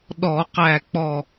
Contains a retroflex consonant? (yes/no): no